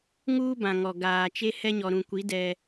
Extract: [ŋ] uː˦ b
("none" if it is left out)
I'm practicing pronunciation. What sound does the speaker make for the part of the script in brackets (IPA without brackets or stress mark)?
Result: ŋ